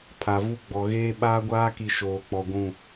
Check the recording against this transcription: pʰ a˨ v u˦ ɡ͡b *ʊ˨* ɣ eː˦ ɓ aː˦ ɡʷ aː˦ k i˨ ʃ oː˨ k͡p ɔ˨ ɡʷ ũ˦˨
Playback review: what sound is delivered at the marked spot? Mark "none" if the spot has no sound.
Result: ɔ˨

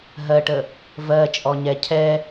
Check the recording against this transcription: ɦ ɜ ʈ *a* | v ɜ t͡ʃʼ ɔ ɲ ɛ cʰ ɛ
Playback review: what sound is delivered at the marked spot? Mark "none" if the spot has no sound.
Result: ə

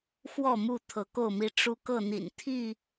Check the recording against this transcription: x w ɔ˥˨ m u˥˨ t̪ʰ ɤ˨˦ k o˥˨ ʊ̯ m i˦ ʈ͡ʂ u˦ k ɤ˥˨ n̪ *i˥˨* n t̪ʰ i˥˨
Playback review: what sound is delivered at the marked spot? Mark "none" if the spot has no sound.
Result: ḭ˨˩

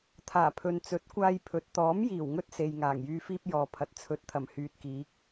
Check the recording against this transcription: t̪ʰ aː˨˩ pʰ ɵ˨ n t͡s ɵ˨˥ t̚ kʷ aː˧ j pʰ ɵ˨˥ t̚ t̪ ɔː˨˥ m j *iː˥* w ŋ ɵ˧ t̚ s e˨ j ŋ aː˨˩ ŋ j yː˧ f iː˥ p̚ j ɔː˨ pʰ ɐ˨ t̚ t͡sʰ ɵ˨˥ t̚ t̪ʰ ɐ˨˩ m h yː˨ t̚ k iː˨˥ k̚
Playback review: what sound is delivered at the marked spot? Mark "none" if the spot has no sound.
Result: iː˨˩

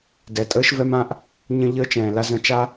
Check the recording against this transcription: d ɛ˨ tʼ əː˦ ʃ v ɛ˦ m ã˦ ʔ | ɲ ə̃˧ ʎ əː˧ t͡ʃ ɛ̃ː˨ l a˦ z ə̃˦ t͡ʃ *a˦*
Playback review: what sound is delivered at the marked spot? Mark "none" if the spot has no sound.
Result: a˦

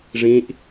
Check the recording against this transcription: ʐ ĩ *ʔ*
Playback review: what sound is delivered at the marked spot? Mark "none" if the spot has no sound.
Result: ʔ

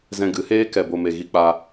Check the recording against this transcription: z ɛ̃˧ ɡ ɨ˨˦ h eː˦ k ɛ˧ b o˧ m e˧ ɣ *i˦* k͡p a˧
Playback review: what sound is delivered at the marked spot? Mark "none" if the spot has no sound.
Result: i˧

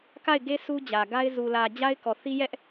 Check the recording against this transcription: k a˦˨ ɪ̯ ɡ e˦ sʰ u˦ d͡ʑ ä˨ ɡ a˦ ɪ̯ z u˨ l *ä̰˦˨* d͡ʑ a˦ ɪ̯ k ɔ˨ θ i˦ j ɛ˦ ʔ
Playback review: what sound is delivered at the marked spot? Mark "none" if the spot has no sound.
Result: ä˨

